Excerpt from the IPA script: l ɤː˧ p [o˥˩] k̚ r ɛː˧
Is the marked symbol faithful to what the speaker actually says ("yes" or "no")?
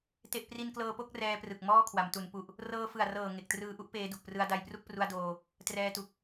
yes